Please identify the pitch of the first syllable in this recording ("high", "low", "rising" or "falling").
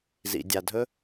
low